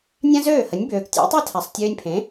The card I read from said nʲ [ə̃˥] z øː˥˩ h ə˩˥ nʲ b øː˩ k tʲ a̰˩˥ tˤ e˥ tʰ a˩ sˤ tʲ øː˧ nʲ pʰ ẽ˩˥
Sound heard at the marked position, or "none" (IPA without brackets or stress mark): ã˥